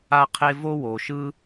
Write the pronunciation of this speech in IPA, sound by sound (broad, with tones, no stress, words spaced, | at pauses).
a˥qʰe˥ vo˥wo˧ ʃɯ˥